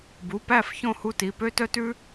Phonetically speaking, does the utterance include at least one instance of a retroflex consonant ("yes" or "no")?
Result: no